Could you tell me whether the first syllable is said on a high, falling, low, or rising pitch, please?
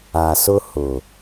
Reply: low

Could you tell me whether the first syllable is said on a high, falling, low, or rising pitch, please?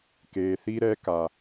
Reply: low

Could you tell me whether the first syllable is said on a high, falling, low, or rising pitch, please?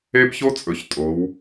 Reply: high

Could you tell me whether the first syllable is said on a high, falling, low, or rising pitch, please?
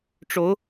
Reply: rising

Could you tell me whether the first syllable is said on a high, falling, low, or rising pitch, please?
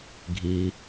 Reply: low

